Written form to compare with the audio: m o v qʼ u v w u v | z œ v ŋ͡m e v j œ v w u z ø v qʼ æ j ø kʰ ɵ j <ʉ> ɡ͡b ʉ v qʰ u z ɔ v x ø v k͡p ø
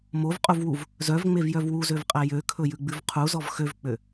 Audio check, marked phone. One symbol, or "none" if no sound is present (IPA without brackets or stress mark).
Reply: ʉ